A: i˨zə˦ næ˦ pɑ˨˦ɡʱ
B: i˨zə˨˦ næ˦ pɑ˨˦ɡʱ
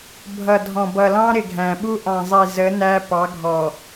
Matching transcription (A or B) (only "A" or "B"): B